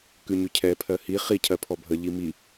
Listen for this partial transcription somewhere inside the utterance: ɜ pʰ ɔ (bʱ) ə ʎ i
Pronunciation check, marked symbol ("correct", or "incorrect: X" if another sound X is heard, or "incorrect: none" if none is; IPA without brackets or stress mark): correct